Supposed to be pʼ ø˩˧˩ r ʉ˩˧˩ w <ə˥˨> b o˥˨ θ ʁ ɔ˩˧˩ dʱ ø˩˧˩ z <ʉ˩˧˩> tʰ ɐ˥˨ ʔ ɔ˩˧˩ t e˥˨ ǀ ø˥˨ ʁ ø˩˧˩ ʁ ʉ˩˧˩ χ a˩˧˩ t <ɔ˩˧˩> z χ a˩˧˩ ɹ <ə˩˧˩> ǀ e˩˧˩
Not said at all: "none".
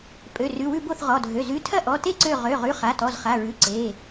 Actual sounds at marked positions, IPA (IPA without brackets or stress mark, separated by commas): ʉ˥˨, ʉ˩˧˩, ɔ˩˧˩, ʉ˩˧˩